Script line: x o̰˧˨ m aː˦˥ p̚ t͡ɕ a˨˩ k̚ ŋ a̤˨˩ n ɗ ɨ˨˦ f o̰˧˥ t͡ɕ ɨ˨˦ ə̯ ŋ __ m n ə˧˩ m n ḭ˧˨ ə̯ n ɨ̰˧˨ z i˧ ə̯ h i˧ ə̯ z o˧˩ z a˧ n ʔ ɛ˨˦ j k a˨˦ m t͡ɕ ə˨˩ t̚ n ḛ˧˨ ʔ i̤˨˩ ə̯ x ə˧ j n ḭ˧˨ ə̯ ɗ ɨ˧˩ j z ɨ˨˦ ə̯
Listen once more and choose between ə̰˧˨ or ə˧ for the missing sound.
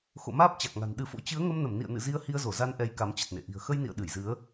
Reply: ə˧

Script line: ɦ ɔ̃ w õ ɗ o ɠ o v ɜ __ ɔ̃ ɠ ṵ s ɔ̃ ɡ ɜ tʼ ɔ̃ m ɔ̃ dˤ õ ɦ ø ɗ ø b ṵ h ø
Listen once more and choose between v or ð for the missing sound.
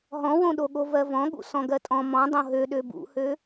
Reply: v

